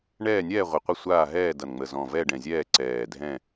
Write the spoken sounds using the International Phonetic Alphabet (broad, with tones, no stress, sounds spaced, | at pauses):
ɳ ɛː˦˨ nʲ ɛː˦˨ ʁʷ ə˨˩ qʷ ʌ˦˨ sʷ aː˦˨ ɦ ɛː˦˨ d ʌ˨˩ n ŋ͡m ə˨˩ z ɔ̃˨˩ v ɛ˦˨ ɖ ɛ̃˨˩ zʲ ɛː˦˨ ǀ ɛː˨˩ dʱ ɛ̃˦˨